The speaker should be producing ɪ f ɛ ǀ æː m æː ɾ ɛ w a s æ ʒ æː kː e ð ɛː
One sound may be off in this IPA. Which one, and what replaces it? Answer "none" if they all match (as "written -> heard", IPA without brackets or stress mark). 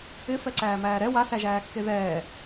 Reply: none